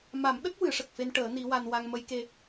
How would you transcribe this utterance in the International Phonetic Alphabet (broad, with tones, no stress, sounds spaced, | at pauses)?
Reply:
m a˨˩˦ m ɗ ə˦˥ k̚ w ɨ˨˩˦ ʂ ə˨˩ k̚ f e˧ n ʈ əː˨˩˦ n i˧˥ w a˧ n w a˧ ŋ m ə˧˥ j k e˧